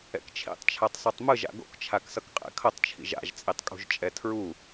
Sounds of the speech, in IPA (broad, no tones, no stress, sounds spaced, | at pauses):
ɛ̰ k t͡ʃʰ ḭ tˤ t͡ʃʰ a tˤ sˤ u tˤ m ɯ ʒ a̰ ɡ o̰ k t͡ʃʰ a k s ʌ k qʼ ɛ̰ kʰ ʌ tˤ t͡ʃʰ ḭ ʒ a̰ ʒ t͡sʼ i tˤ kʼ ṳ ʒ t͡ʃʼ ɛ tʰ ɹ u